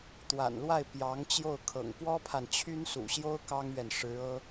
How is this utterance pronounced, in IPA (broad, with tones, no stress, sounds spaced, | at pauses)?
t̪ w a̰˨˩ n l w a˥˩ ɪ̯ p j ɑ˧˥ ŋ t͡ɕ j o˥˩ ʊ̯ kʰ ɤ̰˨˩ ŋ p w ɔ˥ pʰ a˨ n t͡ɕʰ y˥ n s ṵ˨˩ ɕ j o˥ ʊ̯ k ɑ˥ ŋ ɥ ɛ˨ n ʂ ɻ̩˧˥ ɤ˥